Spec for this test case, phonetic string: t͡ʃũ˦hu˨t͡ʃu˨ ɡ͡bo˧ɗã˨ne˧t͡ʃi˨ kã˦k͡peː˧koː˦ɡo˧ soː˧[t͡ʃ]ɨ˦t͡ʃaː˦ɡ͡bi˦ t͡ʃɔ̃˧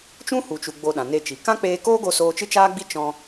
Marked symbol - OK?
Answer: yes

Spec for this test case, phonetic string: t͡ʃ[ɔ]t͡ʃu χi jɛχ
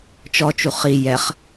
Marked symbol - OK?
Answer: yes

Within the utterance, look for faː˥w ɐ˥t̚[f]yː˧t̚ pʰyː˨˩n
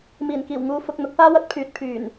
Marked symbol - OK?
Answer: no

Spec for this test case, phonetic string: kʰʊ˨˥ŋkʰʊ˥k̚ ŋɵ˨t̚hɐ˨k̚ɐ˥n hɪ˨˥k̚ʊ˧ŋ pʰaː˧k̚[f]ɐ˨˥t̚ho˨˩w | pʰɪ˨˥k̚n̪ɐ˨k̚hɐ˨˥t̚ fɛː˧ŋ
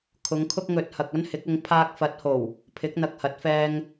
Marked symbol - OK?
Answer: yes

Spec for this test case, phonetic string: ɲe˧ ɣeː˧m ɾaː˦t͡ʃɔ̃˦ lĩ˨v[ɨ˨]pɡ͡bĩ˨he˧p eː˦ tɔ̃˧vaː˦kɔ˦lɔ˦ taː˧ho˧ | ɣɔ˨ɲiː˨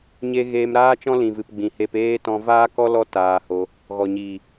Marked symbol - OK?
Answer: yes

